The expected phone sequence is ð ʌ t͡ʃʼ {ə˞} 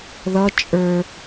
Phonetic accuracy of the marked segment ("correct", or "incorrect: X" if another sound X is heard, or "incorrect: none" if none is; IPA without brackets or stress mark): correct